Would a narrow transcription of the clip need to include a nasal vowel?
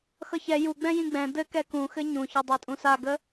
yes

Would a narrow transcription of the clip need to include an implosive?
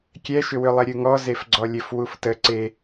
no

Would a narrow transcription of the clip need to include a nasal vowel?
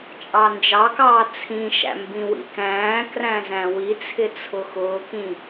yes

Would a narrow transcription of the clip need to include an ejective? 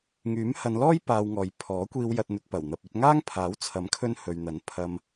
no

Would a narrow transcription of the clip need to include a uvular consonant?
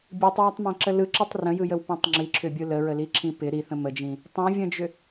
no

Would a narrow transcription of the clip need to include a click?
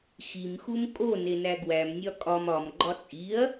yes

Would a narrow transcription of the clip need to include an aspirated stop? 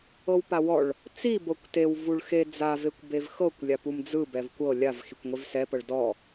no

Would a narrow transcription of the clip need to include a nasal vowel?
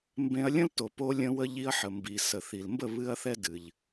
yes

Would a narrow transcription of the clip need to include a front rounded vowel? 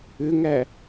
yes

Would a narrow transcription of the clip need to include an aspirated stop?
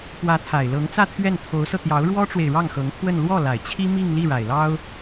yes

